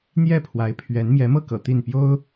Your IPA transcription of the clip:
n̪ j ɛ˥˩ pʰ w a˧˥ ɪ̯ pʰ ɥ ɛ˧˥ n m j ɛ˧˥ m ɤ˥˩ k ɤ̰˨˩ t̪ i˥˩ n p j o˥ ʊ̯

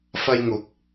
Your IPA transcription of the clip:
f ɐ˧ j ŋ ʊ˨˥ k̚

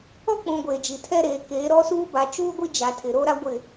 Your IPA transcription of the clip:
ɔ˦ k͡p ũ˨ ɡʷ eː˨ d͡ʒ i˨ tʰ ɛ˦ ɾ eː˦ k eː˨˦ ɾ ɔ˦ s uː˦ b a˨ t͡ʃ uː˦ ɡʷ i˦ d͡ʒ a˨ tʰ ɪ˨ ɾ o˦ ɾ a˦ ɡʷ ɪ˦˨

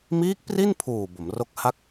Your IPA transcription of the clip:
m iː˦˥ k̚ p r i˥˩ n pʰ uː˨˩ b o˩˦ m r o˦˥ k̚ h a˥˩ k̚

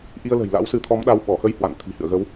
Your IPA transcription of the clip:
ʔ i˧ ə̯ l ə̤˨˩ j l a̰˧˥ w s ɨ˨˦ t̪ʰ ɔ˨˦ m ɗ a˨˦ w ɓ ɔ˧˩ x ə˧ j h w a̰˧˨ n t̪ʰ i̤˨˩ h ɨ̰˧˨ ə̯ ɣ ə˨˦ w

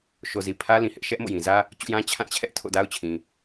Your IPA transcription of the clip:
ʃ o˨ z i˨ pʰ ä˦ l ĩ˨ h ɪ˦ ʔ ʃ ɛ˦ ʔ m o̰˦˨ j ĩ˨ z ä˦ | t͡ɕ ṵ˦˨ j ã˦ t͡ɕʰ ã˦˨ t͡ɕʰ ɛ˦ ʔ tʰ o̰˦˨ d a˦ ʊ̯ t͡ɕʰ ĩ˨

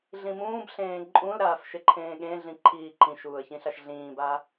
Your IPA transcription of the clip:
ɮ ĩ m ũː b ɬ ẽː ǃʼ ũ l ɾ aː f ʃ e ǃʰ ẽː ɠ ẽ ɮ ĩ ǃʰ iː ǃ ĩ ʃ uː ə̯ ç ĩ ɬ a ʃ ɮ ĩː b a

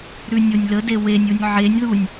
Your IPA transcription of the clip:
ɾ ʉ nʲ o nʲ l ə d e w e nʲ u nʲ ʕ e nʲ ð u nʲ

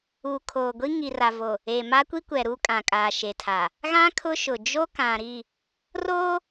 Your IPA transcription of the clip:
uː˨ kʰ oː˨ ɡʷ i˦ ŋ i˨ r a˨ v o˨ | e˨ m a˦ kʷ i˦ kʷ ɛ˨ ɾ uː˦ kʼ ã˨ kʼ aː˨ ʃ e˨ tʰ aː˨ | ɣ ã˦ kʰ ʊ˦ ʃ ʊ˨ d͡ʒ o˦ k ã˨ ɾ i˦˨ | r oː˦

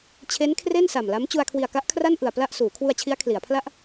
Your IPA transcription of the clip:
t͡ɕʰ e˦˥ n kʰ r e˥˩ n s a˨˩ m l a˦˥ m t͡ɕ u˧ a̯ kʰ w i˨˩ a̯ k a˦˥ ʔ kʰ r a˥˩ n ʔ ɯ˨˩ a̯ p l a˥˩ ʔ s uː˩˦ kʰ w u˧ a̯ t͡ɕʰ i˦˥ a̯ kʰ l i˩˦ a̯ pʰ l a˥˩ ʔ

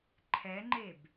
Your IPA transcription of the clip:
ǃʰ ɛ ŋ͡ǃ e b

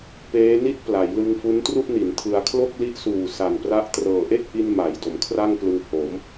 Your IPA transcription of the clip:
p eː˦˥ n i˥˩ t̚ p l a˩˦ j l ɯ˧ ŋ f u˦˥ n t r u˥˩ ʔ n i˩˦ n tʰ ɯ˧ a̯ kʰ l o˥˩ k̚ l i˦˥ ʔ s uː˨˩ s a˨˩ n p r a˦˥ ʔ t r ɤː˨˩ ʔ e˥˩ k̚ ʔ i˧ n m a˩˦ j d o˩˦ m kʰ r a˥˩ ŋ p l ɯ˧ ŋ h o˩˦ m

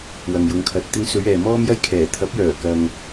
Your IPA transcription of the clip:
w ɐ˨ ŋ j ʊ˨˧ ŋ kʰ ɐ˨ t̚ t̪ ɪ˧ ŋ s ɵ˨˧ ɥ ɛː˨ m ɔː˥ m j ɐ˥ j kʰ ɛː˨˩ t̪ʰ ɐ˨˥ p̚ j œː˨˩ k ɐ˨ ŋ

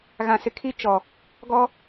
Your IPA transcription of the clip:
ɣ ã˨ s ɪ˨ kʰ i˦ t͡ʃ ɔ˨ | ɡ ɔ˦

